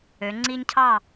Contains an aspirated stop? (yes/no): yes